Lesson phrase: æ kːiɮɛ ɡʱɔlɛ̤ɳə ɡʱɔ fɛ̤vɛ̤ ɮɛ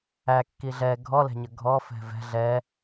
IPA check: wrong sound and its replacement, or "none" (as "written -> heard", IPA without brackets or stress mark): ɳ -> ɲ